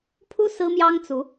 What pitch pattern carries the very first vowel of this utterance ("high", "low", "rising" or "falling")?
high